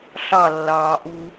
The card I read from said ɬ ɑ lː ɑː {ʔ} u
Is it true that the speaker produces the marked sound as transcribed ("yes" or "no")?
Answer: yes